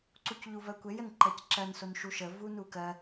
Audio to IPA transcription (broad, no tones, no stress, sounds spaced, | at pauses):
ǀ u c ʎ u v ɜ kʷ e j ə n ǃ ɜ c ǁ ɜ n s o n ʃ u ʃ ə v u n u k ɜ